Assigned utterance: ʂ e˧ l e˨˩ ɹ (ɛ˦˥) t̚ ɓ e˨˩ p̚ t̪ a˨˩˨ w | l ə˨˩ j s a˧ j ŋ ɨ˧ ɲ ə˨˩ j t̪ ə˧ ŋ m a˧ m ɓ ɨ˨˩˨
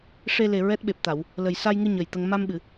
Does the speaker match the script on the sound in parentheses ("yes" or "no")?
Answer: yes